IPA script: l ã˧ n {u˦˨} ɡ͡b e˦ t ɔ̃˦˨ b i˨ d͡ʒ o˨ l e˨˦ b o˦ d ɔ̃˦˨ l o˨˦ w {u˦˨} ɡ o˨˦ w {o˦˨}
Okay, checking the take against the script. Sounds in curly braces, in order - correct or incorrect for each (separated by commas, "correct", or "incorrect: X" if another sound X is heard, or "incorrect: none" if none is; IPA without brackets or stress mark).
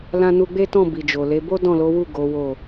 incorrect: u˧, correct, correct